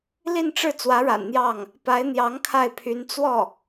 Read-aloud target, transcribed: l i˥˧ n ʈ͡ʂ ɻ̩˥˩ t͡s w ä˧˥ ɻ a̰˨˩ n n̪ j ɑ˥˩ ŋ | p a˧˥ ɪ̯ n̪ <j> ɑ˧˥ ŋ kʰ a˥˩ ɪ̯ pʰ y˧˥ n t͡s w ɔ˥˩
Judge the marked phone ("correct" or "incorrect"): correct